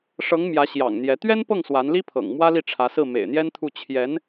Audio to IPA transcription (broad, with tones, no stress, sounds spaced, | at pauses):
ʂ ɤ˧˥ ŋ m j ä˧˥ ɕ j ɑ̰˨˩ ŋ n̪ j ɛ˧˥ t̪ ɥ ɛ˥ n p ɤ˥˩ ŋ s w a˧˥ n l i˥ pʰ ɤ̰˨˩ ŋ m w ä˥ l i˥˩ ʈ͡ʂʰ ä˧˥ s ɹ̩˥˩ m ḛ˨˩ ɪ̯ n̪ j ɛ˥ n t̪ʰ u˥˩ t͡ɕʰ j ɛ˧˥ n